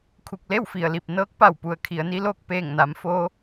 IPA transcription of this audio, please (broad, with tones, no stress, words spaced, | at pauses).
kʰu˧˩k̚le˥˨wfi˩ə̯li˧˩p̚ nɤː˧˥k̚pa˧˩w pu˩˧ə̯kʰi˩˧ə̯ni˧loː˥˨k̚ peː˧˩ŋna˩˧mfoː˧